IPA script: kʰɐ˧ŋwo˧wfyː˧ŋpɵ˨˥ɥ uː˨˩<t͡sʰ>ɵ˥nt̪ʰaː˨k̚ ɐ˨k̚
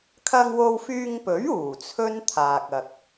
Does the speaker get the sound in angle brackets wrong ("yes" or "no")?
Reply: no